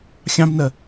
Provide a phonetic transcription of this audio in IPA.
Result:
xʲ ɑ̃ b n ɜ

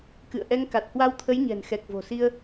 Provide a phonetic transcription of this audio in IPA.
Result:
k ɨ̰˧˨ ə̯ ʔ ɛ˧ ŋ k a˨˩ t̚ h w a˧ w t̪ʰ ə˨˦ j ɲ ɛ̤˨˩ n x ɛ˨˩ k̚ v o̤˨˩ s i˧ ə̯

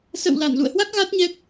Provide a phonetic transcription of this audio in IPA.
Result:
s ə̰˧˨ w l a˧˩ n l ṵ˧˨ ə̯ h w a˦˥ k̚ ɣ a˦˥ t̚ ɲ ɛ˦˥ k̚

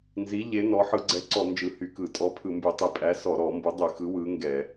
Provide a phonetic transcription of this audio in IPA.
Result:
n z i˨˥ ʎ e˨˥ n ɔ˨˥ ħ ɯ˧˩˧ ɡ͡ǀ ɛ˨˥ ǀ ɔ˧˩˧ n d͡ʒ ɯ˧˩˧ h y˧˩˧ k ɯ˧˩˧ tʼ ɔ˨˥ pʰ ɯ˧˩˧ m b y˧˩˧ tˤ i˧˩˧ pʼ æ˨˥ s ɔ˧˩˧ ɾ ɔ˧˩˧ m b u˨˥ dˤ y˧˩˧ x ɯ˨˥ w ɯ˨˥ ŋ ɡ ɛ˧˩˧

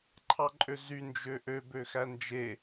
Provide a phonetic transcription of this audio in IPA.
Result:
ǃʰ ɑ ǃʼ ø z y n d͡ʒ ø ʔ ø b ø x æ n d͡ʒ e

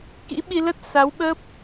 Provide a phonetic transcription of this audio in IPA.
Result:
k ḭ˧˥ ɓ i˧ l ə˦˥ t̚ s a˨˦ w ɓ əː˦˥ p̚

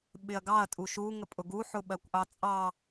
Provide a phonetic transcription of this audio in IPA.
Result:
ɓ ɪ ɐ̯ ɡ ɑ ɐ̯ tʼ u ʃ u ŋ ə pʼ ʊ ɡ u ħ ʊ ɓ ɜ kʷ ʔ ɑ t͡sʼ ɑ

